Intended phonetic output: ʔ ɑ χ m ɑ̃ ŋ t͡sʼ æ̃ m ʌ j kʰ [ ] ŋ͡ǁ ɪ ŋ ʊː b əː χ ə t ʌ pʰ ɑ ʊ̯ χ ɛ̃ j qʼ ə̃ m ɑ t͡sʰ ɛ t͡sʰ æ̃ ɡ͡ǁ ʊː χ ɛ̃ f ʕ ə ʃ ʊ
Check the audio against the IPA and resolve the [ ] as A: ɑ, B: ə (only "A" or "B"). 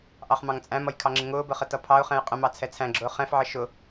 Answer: A